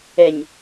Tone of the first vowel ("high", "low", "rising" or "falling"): low